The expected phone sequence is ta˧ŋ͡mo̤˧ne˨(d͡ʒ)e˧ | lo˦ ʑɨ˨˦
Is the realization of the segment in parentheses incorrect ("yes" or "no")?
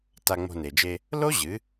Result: no